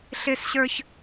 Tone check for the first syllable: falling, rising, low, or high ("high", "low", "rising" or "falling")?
high